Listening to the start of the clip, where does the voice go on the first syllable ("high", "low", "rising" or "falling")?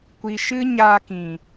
low